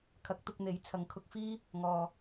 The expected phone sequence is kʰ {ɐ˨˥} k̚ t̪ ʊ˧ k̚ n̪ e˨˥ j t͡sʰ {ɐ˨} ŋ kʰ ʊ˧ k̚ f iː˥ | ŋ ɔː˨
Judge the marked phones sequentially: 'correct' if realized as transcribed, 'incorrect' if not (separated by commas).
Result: correct, correct